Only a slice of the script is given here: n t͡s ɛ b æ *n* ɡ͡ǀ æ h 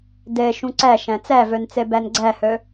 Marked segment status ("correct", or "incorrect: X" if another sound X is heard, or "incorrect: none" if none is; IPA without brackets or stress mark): correct